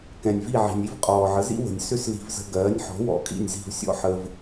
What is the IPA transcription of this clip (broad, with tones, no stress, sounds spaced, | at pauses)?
k ɛ̃˩ nʲ v i˥˩ ʕ i̤˩ nʲ i˥ v qʼ ɔː˩ ʕ ə˩˥ z ḭ˥ w ə̤˩ nʲ s ʏ˥ s l i̤˧ v z ə̤˧ ɡ ɜː˩˥ nʲ ħ ɔ̤˩˥ w ɔ̰˩˥ kʼ ḭ˥˩ nʲ z i̤˥˩ v sʲ ɔ̰˥ ħ ə˧ v